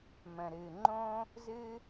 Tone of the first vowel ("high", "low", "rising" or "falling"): low